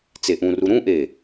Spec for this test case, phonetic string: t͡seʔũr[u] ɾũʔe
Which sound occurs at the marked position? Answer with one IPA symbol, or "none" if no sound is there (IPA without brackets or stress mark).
u